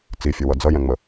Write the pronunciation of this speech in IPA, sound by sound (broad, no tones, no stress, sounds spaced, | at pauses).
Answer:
t͡s i fʲ ʊ w ʌ d͡z ʌ j ɛ̃ ŋ͡m ə